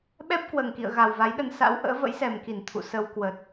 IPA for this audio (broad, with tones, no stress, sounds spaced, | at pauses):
ɓ ɛ˦˥ p̚ k w əː˨˩ ŋ k ḭ˧˨ ə̯ ɣ a˨˩ w v a˨˦ j ɗ ə˧ n s a̰˧˥ w ʔ ə̰ː˧˥ v ə̰˧˥ j s ɛ˨˩ m k i˧˩ n t̪ʰ ṵ˧˨ s ə˧ w k w ə˨˩ t̚